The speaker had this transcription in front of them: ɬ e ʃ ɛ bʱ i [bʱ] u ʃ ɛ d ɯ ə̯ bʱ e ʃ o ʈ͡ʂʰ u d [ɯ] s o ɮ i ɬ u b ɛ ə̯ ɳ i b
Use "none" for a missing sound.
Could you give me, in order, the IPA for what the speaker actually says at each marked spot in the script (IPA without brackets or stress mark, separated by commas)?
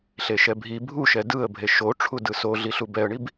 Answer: bʱ, ɯ